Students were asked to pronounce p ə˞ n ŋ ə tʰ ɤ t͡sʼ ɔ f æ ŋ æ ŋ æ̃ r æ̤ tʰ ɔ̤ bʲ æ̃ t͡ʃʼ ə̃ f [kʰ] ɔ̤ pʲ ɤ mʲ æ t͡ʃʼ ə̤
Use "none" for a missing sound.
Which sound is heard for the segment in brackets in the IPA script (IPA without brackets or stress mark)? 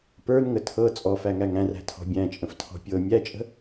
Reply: tʰ